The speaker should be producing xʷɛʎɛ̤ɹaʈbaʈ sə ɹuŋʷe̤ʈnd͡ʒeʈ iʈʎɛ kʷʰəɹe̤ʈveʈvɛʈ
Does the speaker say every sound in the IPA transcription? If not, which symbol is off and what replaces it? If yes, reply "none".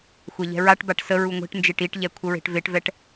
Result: none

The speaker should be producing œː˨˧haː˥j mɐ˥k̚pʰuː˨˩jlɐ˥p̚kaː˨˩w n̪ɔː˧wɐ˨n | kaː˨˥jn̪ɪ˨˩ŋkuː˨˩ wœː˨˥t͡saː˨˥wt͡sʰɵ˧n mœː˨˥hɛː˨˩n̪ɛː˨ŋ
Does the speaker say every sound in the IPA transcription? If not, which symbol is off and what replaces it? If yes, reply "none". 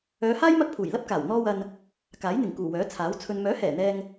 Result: t͡s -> t͡sʰ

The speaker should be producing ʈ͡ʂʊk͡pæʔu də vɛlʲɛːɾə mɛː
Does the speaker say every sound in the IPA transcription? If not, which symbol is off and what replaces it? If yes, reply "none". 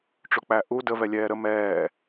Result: none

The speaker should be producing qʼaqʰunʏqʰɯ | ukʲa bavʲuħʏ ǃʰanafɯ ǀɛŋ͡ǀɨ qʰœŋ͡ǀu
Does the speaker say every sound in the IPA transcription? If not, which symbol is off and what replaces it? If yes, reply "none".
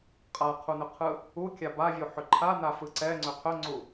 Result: ɨ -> ʏ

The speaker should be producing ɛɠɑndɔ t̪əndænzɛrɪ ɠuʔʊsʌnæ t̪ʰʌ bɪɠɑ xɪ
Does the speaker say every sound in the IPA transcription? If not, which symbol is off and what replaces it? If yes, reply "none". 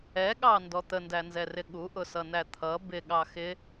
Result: none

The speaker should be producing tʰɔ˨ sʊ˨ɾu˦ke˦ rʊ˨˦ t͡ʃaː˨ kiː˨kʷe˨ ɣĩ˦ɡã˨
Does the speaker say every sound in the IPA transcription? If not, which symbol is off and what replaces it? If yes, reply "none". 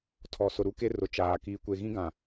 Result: none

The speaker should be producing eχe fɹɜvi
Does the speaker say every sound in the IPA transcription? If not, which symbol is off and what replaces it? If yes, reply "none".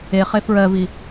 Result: none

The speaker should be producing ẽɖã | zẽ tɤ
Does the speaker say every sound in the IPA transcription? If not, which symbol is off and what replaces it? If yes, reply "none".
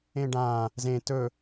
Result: ɤ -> ɵ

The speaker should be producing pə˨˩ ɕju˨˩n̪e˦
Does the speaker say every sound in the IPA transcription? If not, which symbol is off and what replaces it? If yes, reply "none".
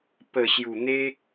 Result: none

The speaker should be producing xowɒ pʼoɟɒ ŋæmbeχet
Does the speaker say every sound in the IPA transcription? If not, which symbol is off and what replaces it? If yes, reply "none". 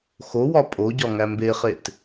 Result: none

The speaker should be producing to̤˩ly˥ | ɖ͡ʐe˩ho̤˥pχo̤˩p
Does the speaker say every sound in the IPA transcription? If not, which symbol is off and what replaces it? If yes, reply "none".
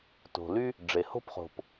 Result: none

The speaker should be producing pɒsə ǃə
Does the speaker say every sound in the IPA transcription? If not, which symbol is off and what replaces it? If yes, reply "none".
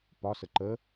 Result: none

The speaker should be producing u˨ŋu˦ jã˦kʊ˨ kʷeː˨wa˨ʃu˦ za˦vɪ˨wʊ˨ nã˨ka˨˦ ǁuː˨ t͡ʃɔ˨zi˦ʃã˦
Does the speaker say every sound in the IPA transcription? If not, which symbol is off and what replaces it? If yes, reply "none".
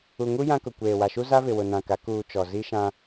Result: ǁ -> k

